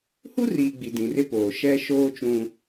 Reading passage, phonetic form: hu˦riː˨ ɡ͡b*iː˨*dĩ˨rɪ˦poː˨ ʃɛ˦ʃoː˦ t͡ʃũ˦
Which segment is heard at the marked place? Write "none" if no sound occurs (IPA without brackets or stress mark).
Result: i˨